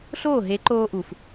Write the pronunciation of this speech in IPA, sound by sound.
ɬ oː˦˨ ɦ e˨˦ ǃ oː˧ ʔ u˨ f

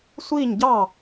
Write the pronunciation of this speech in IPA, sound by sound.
sʷ iː˥˩ ɲ ɟ ɑː˥˩

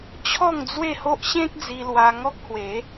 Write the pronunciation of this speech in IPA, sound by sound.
t͡ɕʰ ɔ˥˧ ŋ d͡z w e˥˧ h o˦ ʔ ɕ ẽ˦ k̚ d͡z i˧ l w a˧ ŋ ɔ˦ k̚ h w e˨˦

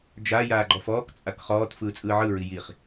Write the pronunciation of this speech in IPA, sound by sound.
d͡ʒ a j aː ɡ͡ǃ ɔ f ɔː k t͡sʼ a k χ ɔː t f ɯː t͡sʼ ɯː ʕ ɯ ɹ i j i χ

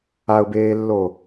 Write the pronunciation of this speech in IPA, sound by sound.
a ʊ̯ b eː lː o

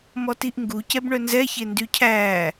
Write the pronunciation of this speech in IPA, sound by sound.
m ɔ t i ʔ ŋ ɡ u c ɛ b ɳ œ n z ɛ ç e n d y cʰ æː

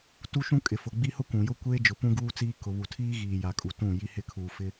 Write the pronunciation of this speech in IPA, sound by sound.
t u˦ ʃ ũ˦ kʼ ɪ˨ f ʊ˨ ɡ͡b i˦ h ʊ˦ kʷ ũ˨ j ʊ˦ kʷ eː˦ d͡ʒ ʊ˨ p ũ˦ ɡ uː˦ t͡s iː˦ k ʊ˨ β u˨ tʰ iː˦ ɣ iː˨ j a˨ kʼ u˨ t ũ˦˨ j i˦ h ɪ˦ kʰ uː˨ f ɪ˦

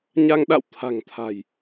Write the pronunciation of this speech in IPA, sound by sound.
ɲ a˧ ŋ ɗ a̰˧˨ w t̪ʰ a̤˨˩ ŋ t̪ʰ a̤˨˩ j

